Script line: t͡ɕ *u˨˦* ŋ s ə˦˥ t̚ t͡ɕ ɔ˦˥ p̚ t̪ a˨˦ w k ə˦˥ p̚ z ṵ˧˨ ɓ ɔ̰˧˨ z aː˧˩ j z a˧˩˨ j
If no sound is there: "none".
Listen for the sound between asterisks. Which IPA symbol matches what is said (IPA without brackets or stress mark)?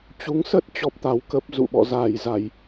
u˨˦